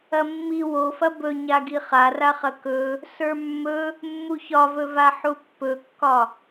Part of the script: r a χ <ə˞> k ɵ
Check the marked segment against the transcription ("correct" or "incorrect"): incorrect